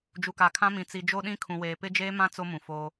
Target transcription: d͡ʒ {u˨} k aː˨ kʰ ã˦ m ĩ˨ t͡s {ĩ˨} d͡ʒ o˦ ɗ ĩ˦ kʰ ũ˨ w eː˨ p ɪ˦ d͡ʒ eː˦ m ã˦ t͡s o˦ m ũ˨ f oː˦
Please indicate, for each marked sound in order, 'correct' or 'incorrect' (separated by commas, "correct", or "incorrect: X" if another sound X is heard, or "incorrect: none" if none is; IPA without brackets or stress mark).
correct, incorrect: i˨